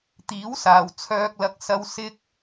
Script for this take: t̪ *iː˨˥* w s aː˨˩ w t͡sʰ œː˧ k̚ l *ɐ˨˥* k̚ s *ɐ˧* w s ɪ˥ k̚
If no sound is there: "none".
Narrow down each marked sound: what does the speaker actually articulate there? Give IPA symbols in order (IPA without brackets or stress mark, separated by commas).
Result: iː˨˥, ɐ˧, ɐ˧